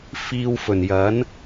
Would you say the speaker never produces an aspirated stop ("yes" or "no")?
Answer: yes